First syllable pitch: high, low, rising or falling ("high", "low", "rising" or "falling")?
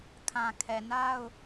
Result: low